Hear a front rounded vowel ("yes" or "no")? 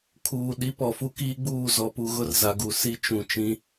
no